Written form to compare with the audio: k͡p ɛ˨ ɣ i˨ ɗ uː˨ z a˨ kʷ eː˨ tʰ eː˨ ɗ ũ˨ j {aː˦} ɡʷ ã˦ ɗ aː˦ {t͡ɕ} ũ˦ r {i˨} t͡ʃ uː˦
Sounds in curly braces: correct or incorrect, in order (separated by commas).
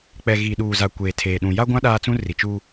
incorrect, incorrect, correct